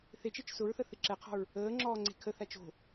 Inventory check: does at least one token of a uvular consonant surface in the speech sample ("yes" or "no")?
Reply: yes